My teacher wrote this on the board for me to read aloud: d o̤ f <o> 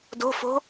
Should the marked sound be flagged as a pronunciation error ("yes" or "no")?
yes